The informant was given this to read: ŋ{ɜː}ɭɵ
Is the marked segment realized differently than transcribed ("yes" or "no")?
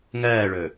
no